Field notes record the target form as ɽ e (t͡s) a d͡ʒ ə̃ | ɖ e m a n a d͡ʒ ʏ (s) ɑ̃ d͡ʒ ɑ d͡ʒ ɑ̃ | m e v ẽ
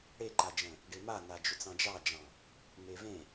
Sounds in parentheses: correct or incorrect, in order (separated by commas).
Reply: incorrect, incorrect